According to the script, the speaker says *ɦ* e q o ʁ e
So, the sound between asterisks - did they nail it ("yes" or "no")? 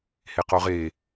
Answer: no